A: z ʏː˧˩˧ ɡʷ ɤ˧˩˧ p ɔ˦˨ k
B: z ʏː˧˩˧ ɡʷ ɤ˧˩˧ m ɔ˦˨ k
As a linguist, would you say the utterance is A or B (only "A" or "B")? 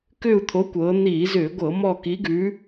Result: B